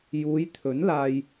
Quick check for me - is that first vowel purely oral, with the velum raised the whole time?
yes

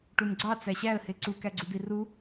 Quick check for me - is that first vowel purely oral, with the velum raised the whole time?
yes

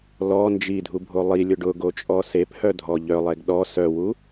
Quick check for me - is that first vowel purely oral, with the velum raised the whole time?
yes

